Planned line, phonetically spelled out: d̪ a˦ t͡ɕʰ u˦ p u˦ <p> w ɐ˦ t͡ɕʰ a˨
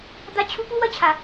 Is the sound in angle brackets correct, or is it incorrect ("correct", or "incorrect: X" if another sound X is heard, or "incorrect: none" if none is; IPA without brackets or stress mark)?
incorrect: none